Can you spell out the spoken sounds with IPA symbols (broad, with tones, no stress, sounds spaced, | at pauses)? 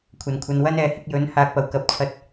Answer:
kʷʰ ɐ˨˩ n kʷʰ ɐ˨˧ n w ɐ˥ n ɛː˨ h ɪ˧ k̚ j ɵ˨˥ n h aː˨ k̚ p ɐ˨˩ w k ɐ˨˥ p̚ t͡sʰ ɐ˧ t̚